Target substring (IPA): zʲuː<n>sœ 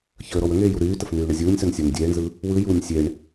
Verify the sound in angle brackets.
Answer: incorrect: nʲ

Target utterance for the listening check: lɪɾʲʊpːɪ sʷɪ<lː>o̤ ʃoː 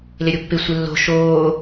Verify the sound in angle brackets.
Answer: correct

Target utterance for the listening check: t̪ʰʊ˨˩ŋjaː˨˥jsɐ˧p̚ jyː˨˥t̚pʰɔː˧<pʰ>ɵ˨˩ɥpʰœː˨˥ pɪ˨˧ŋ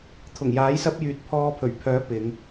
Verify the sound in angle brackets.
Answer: correct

